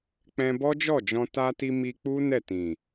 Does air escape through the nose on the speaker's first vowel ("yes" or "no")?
yes